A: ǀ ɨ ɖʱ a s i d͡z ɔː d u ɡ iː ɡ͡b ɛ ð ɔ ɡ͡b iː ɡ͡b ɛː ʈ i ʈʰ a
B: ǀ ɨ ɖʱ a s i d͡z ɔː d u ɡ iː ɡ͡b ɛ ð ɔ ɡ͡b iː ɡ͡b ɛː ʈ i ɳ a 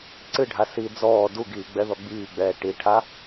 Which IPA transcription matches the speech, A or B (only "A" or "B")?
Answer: A